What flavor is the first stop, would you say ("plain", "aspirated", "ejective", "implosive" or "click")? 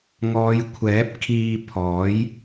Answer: aspirated